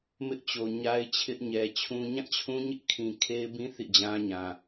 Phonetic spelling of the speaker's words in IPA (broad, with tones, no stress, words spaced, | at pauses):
mɪ˦ʔ t͡ɕo˨ ɲa˦ɪ̯t͡ɕʰɪ˦ʔɲɛ˨t͡ɕʰũ˦ ɲã˦˨t͡ɕʰũ˦ɲɪ˦ʔ kʰĩ˨kʰe˦ɪ̯bĩ˦ θḭ˦˨d͡ʑã˦ɲã˨